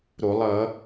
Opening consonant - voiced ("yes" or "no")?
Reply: yes